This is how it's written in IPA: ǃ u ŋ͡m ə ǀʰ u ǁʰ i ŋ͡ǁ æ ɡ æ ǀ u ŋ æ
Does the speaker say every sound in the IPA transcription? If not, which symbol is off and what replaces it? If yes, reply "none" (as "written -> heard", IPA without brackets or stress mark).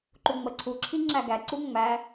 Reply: ŋ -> ŋ͡m